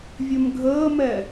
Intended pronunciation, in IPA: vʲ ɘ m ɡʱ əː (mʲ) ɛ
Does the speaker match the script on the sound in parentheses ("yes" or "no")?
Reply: no